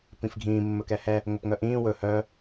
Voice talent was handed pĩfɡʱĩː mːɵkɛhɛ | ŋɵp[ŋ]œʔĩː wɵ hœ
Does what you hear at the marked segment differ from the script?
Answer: no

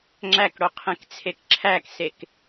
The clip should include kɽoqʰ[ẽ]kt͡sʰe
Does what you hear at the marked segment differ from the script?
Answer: no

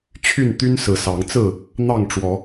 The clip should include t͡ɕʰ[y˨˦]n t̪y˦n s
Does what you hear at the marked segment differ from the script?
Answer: yes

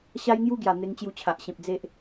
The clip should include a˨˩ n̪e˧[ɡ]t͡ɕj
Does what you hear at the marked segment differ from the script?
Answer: yes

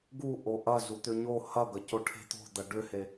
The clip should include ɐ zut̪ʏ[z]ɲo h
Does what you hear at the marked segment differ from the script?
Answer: yes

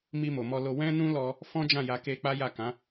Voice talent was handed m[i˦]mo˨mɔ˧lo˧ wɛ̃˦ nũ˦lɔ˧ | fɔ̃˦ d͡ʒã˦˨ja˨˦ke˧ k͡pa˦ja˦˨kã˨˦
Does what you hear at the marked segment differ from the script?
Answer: yes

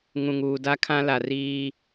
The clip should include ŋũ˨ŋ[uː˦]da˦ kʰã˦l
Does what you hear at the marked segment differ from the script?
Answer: yes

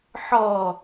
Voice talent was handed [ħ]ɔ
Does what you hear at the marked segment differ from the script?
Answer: no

